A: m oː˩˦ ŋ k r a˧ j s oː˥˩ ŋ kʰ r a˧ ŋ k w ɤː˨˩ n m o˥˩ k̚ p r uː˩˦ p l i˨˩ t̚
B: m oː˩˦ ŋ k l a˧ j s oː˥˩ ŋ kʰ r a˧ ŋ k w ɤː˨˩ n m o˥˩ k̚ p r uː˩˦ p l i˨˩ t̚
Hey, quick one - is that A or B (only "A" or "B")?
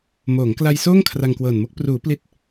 B